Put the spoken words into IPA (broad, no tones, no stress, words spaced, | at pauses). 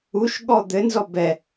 uʃɠɔ d̪ɘnzɔ bɛ